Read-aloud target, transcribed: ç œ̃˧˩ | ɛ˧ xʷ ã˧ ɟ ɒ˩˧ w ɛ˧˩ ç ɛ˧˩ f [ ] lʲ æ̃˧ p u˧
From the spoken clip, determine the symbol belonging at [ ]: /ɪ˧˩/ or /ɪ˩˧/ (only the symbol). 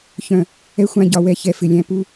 ɪ˧˩